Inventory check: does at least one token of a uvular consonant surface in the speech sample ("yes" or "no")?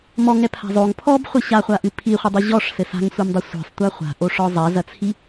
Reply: yes